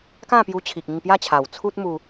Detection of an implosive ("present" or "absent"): absent